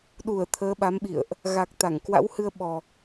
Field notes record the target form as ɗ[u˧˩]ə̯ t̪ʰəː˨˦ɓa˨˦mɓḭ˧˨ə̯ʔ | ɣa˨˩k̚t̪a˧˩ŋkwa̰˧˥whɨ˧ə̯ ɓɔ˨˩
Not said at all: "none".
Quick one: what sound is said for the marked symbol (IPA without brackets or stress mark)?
u˧˩